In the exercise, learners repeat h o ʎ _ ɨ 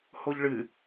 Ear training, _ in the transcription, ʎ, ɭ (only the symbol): ɭ